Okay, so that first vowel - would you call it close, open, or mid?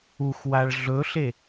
close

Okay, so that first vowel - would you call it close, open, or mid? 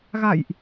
open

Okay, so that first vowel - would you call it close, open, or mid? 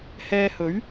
mid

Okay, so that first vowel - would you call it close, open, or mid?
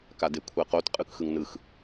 open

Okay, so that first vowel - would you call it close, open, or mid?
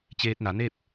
mid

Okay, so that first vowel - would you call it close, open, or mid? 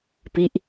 close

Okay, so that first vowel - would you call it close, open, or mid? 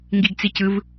close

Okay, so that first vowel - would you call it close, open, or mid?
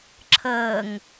mid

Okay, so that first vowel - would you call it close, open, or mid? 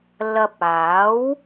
open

